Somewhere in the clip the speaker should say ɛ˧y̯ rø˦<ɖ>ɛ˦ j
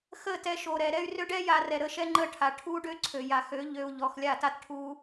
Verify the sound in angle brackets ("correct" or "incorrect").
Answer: correct